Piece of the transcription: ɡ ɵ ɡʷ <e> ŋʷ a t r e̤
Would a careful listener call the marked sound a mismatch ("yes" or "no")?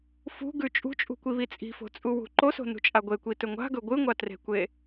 yes